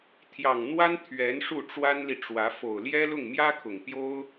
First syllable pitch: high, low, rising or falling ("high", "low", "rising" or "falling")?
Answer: low